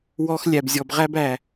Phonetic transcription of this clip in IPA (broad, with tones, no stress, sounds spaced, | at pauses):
w ɔ˧ x lʲ æ˨ b zʲ ɔ˨ b ʁ æ˧ b æ˨